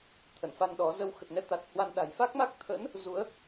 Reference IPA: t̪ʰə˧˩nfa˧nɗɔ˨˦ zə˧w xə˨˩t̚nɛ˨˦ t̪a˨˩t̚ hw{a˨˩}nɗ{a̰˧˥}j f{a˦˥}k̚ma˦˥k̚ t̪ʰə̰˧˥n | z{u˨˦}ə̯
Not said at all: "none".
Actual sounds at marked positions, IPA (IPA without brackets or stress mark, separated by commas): a˧, a̤˨˩, a˦˥, u˨˦